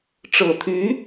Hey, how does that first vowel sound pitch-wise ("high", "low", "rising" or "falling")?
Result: low